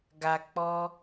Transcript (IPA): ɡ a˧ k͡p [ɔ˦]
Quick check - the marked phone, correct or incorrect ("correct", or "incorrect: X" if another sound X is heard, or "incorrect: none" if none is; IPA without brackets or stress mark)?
correct